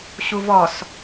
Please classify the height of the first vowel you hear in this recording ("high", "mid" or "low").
high